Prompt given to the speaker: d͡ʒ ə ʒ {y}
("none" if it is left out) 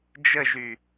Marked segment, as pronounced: y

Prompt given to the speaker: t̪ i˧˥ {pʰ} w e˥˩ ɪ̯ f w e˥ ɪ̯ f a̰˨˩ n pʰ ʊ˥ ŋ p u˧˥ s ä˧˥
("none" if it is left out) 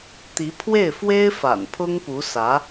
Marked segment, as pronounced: pʰ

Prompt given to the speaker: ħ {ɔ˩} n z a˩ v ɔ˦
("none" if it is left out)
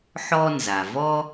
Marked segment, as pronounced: ɔ˦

